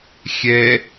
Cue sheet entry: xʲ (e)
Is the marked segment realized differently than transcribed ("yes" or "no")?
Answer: yes